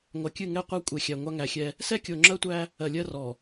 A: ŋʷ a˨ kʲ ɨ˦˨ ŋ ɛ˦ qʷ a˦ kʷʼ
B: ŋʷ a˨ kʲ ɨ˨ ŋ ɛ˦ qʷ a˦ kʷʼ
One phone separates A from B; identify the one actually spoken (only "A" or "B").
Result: A